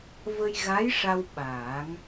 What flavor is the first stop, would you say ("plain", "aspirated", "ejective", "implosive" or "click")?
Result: implosive